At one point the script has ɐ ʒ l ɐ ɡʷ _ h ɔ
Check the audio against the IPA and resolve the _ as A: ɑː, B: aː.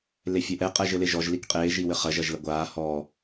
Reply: B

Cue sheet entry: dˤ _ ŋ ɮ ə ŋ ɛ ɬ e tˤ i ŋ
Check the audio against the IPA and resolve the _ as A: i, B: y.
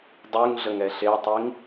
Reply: B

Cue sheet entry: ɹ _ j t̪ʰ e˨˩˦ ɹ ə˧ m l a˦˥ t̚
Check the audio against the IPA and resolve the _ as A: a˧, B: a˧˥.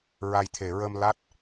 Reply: A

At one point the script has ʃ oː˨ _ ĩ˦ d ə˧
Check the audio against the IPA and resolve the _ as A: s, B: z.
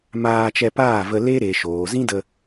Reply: B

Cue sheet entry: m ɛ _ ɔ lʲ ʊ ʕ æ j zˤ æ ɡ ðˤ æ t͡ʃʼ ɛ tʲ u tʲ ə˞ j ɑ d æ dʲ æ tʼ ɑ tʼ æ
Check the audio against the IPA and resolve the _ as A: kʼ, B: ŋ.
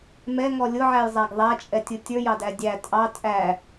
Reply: B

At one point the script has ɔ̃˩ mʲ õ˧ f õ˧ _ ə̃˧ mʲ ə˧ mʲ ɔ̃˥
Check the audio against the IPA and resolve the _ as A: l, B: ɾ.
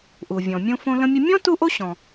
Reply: A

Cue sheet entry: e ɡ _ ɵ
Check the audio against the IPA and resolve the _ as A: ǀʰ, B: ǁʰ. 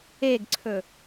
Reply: A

